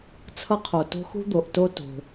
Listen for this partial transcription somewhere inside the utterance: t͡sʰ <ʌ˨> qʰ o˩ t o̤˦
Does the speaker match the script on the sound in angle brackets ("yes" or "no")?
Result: no